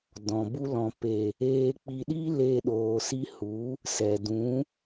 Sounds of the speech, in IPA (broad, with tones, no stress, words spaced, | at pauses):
dɔ̃˨bu˦ lɔ̃˨ pe˨ | eː˧k͡pi˧ ɗi˦ le˧ɗoː˨si˧hu˨˦ | sɛ˨ dũ˨˦